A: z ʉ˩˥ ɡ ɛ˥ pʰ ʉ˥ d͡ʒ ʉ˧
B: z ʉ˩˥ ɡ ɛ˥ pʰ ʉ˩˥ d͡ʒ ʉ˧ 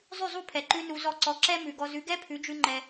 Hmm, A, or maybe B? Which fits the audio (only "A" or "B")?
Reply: B